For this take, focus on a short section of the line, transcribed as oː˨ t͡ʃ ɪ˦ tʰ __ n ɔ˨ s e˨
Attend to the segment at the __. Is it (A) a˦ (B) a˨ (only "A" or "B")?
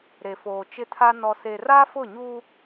A